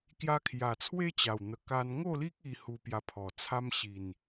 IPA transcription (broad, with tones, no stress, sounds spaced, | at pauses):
k j a˧ kʰ j a˨˩ t͡sʰ w e˦ t͡ɕ a˨˩ w n̪ ə˨˩ k a˧ n ŋ o˥˧ l i˦ k̚ i˦ h u˧ p j a˧ pʰ ɔ˨˩ t͡sʰ a˦ m ɕ i˨˩ n